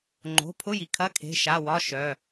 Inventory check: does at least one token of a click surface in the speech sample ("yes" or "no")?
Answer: yes